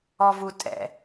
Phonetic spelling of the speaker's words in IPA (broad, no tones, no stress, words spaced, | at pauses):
ɔvutʼɛ̰